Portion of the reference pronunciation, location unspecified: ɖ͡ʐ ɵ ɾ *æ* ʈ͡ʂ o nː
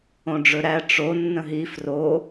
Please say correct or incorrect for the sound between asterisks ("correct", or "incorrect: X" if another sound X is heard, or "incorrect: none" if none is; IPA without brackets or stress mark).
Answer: correct